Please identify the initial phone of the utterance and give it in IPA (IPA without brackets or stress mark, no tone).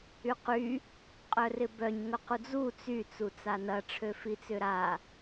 y